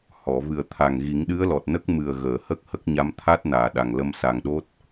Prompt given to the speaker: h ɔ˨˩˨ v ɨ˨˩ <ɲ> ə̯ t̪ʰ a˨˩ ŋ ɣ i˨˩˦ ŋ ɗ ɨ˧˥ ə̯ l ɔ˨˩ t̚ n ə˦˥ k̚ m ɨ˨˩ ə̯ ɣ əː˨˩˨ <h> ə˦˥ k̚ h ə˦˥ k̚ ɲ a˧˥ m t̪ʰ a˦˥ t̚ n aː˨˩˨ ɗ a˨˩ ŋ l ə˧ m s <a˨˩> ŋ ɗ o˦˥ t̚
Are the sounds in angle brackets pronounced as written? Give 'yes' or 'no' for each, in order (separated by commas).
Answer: no, yes, yes